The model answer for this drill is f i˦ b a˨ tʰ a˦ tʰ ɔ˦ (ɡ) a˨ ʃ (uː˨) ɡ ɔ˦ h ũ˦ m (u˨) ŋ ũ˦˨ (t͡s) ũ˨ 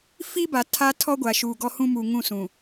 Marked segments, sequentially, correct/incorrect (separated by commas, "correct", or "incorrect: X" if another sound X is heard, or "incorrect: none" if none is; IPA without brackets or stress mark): incorrect: ɡʷ, correct, correct, incorrect: s